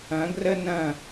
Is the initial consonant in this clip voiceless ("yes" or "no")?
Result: no